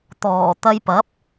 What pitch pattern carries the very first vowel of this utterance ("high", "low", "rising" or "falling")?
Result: low